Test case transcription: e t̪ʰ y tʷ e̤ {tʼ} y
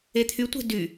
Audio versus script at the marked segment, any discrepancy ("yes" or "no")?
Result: yes